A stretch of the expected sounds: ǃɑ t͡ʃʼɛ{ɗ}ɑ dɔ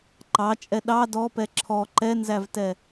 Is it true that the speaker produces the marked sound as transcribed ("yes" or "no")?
yes